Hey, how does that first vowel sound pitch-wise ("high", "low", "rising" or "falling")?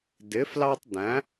rising